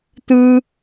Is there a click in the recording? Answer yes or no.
no